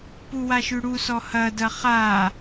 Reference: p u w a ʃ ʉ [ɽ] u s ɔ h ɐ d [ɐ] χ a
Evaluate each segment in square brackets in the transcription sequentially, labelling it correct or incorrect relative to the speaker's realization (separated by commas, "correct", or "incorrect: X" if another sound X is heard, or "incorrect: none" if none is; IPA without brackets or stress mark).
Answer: correct, correct